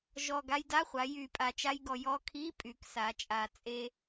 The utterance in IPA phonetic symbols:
ʒ ɔ˨˩ ɡ a˧ j d a˧˥˧ χʷ a˩˧ j y˨˩ pʼ a˨˩ t͡ʃ a˧ j ɡ ɔ˨˩ j ɔ˧ kʰ i˧˥˧ pʼ y˩˧ k s a˩˧ t͡ʃʼ a˨˩ t͡sʼ e˧

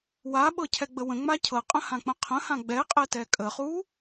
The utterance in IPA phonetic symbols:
w a ɓ ɤ cʰ ɛ ɡ͡b ə w ə̃ ŋ͡m a cʰ ɤ qʼ ə̃ h ã k͡p ə̃ qʰ ə̃ h ã ɡ͡b ɛ qʼ ɛ t ɛ kʼ ə χ u

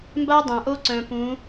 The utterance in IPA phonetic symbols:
m b a˦ dˤ ã˨ ʔ o˦ ǀ œ̃˨ p ũ˨˦

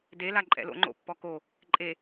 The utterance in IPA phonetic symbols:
d e l a ǃʼ ɛ̰ l o̰ ŋ͡ǃ o̰ pː ɔ k o | ǃʼ e

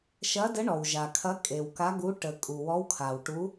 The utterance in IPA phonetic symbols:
ʃ ɐ˧˥ d ə˧˥ ɳ ɔ˨ w ʒ a˨ kʰ ɐ˧˥ kʼ e˨ w k a˧˥ ɡ u˧˥ ʈ ə˨ kʼ u˨ w ɔ˧˥ w kʰ a˨ w ʈ u˧˥

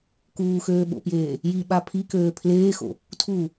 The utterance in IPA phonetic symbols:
k uː x øː ɓ o̰ p j eː | j i ɓ a pʰ i k øː pʰ l eː x o̰ | tʰ u

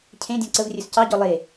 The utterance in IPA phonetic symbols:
cʰ ẽ dʲ ɔ̃ ǀ ə v rʲ ɵ s c ɑ ɟ ɔ lˠ e

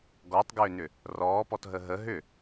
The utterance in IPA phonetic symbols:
ɡ ɔ tˤ ɡ ʏː n ʏ | r ɔː p ɔ t ɦ ə ɦ ə ɦ ʏ

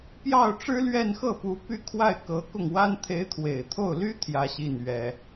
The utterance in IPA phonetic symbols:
p j ɑ˥˩ ʊ̯ ʈ͡ʂ ɻ̩˥ l ɥ ɛ˥˧ n x ɤ˥˩ p u˧˥ p y˥˧ kʰ w a˥˩ ɪ̯ k ɤ˧˥ k ʊ˥˩ ŋ w a˥ n t̪ʰ e˧˥ ɪ̯ t̪ʰ w e˨˩ ɪ̯ t̪ʰ o˥˩ ʊ̯ l y˥ t̪ʰ j ä˥ ɕ i˥˩ n ɥ ɛ˥

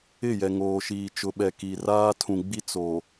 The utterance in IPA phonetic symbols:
ɪ˦˨ j ɛ˨ ŋ oː˨ ʃ iː˨ t͡ʃ ʊ˨ ɓ ɛ˨ k i˨ r aː˦ tʰ ũ˨ ɡ͡b i˦ t͡s o˨

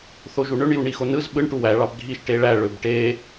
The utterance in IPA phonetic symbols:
θ o ʒ u ɳ ø ɳ j u ɳ i x o n ɯ z ɓ ɯ ɳ ʈ u w æ ɭ ɑ b ɡʱ i ʃ ʈ e ɭ æ ɭ ø b ʈ e

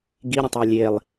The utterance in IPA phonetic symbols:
ɡ i ɾʲ ə̃ tˤ a lʲ e lˠ

